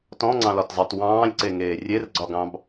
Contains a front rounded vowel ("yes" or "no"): no